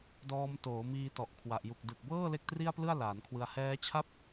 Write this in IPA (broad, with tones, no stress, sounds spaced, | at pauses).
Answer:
d ɔː˧ m t oː˩˦ m iː˧ t ɔ˨˩ ʔ kʰ w a˨˩ ʔ j u˨˩ k̚ d ɯ˨˩ k̚ b ɤː˥˩ l e˥˩ k̚ t r i˥˩ a̯ p l ɯ˥˩ a̯ l aː˩˦ n kʰ w ɯ˧ a̯ h ɛː˦˥ t͡ɕʰ a˥˩ p̚